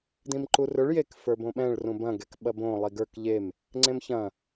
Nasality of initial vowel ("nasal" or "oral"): nasal